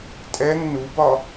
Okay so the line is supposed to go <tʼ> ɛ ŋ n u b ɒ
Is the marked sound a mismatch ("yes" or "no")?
no